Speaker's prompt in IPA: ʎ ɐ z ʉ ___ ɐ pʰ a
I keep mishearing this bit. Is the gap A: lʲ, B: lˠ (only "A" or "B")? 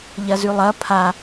B